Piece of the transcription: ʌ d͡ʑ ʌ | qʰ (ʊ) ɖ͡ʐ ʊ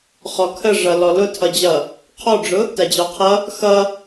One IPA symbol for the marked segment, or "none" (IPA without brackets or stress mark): ɔ